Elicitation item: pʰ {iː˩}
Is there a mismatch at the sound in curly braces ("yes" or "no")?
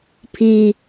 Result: no